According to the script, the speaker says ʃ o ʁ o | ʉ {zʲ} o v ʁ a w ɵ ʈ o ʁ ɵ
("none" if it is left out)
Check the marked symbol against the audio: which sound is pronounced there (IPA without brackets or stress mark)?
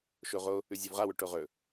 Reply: zʲ